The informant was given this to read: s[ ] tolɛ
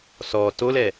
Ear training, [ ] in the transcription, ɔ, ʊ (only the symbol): ɔ